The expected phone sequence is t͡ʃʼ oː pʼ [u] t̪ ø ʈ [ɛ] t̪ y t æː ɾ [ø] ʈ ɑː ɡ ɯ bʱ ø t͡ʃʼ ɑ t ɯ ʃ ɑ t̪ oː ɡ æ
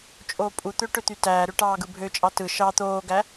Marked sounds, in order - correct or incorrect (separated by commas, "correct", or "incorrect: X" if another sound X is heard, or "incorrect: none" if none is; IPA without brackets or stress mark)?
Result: correct, incorrect: ø, correct